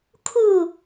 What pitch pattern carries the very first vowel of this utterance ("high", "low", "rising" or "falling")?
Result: falling